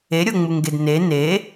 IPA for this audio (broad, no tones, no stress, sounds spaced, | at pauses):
e ɾʲ o ŋ͡m u ŋ ɡ e d n e n e